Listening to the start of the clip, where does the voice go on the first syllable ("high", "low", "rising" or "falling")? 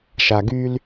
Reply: low